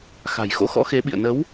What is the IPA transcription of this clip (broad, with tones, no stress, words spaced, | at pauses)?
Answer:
xa̤˨˩j xo̰˧˥xɔ̰˧˥xe˨˦ ɓḭ˧˨ə̯nə˨˦w